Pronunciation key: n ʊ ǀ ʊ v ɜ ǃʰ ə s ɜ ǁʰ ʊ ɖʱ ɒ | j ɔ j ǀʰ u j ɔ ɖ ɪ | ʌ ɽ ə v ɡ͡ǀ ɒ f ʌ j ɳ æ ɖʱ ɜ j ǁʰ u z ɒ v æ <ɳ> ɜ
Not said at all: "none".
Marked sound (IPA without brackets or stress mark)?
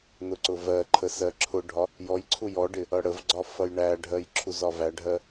ɖʱ